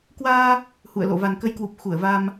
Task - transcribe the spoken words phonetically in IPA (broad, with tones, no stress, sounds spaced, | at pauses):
k w aː˧ | h ṵ˧˨ ə̯ l o̰˧˨ v a˨˩ n k ə˨˦ j k w u˨˩ p̚ x u˧˩ ə̯ v a˧ m